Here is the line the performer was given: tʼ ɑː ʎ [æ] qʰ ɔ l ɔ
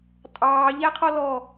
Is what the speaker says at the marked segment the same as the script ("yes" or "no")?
yes